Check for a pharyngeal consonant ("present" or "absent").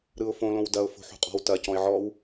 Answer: present